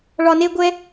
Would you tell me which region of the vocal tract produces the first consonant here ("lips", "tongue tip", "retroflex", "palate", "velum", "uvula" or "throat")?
retroflex